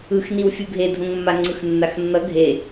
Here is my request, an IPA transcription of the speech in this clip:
ɯxniw fʲuɡʱedʱõŋmːa ŋ͡ǀɯxnːaxnːʌ ɡʱe

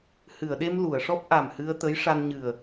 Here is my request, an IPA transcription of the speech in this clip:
hɨ˨˩˨ə̯ɗe˧m lu˨˩˨ə̯ ʂɔ˦˥p̚ ʔa˨˩mhɨ˧ə̯t̪ə˧˥j ʂa˧nɲɨ˨˩ə̯

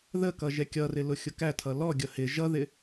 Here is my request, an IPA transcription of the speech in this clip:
ðəkʌ ʒɛkʲʌrɪ lʊxʲʊkætʰʌ lɔɡʲʌ hɪ ʒʌðɪ

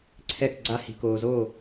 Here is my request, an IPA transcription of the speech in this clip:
ǀʰɛ˥˧kɡ͡ǀa˥hi̤˧ koː˧zo˥˧

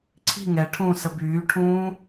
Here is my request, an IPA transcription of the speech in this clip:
ǀʰi̤ ŋɛʈʰũːsə byːʈʰũː

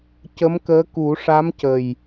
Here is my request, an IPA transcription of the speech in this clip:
cə˧˥mkəː˧˥ ku˨˩˦ʂa˧˥mcə˨˩j

